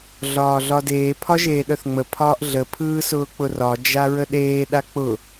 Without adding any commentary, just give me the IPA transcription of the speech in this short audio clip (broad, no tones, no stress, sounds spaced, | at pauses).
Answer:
ɮ ɒː ɮ ɒ d eː pʰ ɒ ʒ eː ɗ œ θ ŋ͡m ə pʰ ɒː ʔ ɮ ə pʰ ɯː s ʊː k͡p ʊ r ɒ d͡ʒ a ɹ ə ɗ eː ɗ a k͡p ʊ